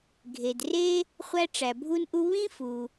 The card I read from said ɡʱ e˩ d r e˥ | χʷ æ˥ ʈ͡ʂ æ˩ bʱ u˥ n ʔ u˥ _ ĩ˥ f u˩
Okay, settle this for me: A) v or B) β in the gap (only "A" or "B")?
B